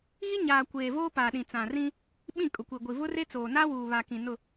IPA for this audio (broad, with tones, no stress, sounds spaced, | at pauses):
ɣ i˦ ɲ aː˨ kʷ eː˨ v oː˦ p aː˨ ɗ ĩ˨ t͡s ã˨ r ĩ˦ | ɓ ĩ˦˨ kʼ ʊ˨ kʷ i˨ ɡʷ i˨ v ʊ˦ r e˦ t͡s oː˨ n aː˦ w uː˨ β a˨ k ĩ˨ n ʊ˦˨